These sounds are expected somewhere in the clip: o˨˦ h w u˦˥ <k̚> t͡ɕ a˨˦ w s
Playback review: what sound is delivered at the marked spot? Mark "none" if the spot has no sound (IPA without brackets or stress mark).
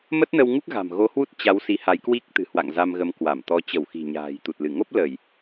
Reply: t̚